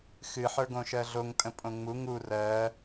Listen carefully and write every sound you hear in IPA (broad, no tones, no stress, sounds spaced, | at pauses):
x ɨ ħ ə˞ ɡ õ ʃ ɜ ɮ o ŋ tʼ ə̃ pʼ õ ŋ͡m u ŋ u r ɜ